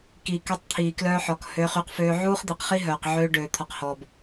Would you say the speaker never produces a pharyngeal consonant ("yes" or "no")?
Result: no